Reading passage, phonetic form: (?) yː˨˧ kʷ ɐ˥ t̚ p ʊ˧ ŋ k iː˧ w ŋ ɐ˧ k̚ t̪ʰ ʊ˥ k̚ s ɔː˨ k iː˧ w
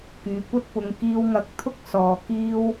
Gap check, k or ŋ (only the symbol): k